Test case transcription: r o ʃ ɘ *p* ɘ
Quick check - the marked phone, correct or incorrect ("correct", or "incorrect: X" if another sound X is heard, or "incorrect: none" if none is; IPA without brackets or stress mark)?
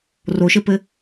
correct